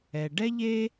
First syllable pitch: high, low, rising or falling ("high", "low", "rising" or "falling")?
low